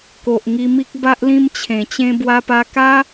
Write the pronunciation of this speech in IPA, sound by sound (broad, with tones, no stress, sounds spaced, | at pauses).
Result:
k o˨ ʔ ŋ i˧ m i˦ k̚ b a˦ ʔ l ĩ˦ m t͡ɕʰ ẽ˨˩ t͡ɕ ẽ˦ b w a˧ p a˧ k a˦